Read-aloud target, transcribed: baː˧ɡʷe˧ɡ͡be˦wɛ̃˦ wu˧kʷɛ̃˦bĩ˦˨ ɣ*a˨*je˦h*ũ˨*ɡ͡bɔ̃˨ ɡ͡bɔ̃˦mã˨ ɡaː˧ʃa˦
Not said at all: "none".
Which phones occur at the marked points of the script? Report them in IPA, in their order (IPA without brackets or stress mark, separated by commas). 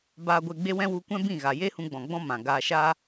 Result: a˨, ũ˧